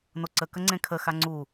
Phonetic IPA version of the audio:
n o ǀ ə k ə ŋ͡ǀ ẽ kʰ ə x a ŋ͡ǀ u

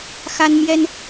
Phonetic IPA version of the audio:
x a˥ n m j ɛ˥ n

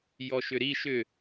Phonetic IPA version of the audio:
j ɔ ʃ ʏ ɾ i ʃ ʏ

